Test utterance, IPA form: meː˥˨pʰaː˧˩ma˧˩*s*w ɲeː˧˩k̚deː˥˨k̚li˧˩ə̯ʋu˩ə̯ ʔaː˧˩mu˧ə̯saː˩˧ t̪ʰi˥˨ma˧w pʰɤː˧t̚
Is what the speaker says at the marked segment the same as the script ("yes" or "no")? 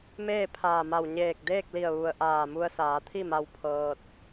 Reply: no